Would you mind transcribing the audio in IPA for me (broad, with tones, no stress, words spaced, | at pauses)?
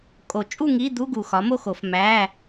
kʼo˨˩˦t͡ʃʼu˥˨ŋi˧˥˧d̪u˧˥˧ ɡu˨˩xɒ˩˥mo˥˨xo˨˩˦f mæ˧˥˧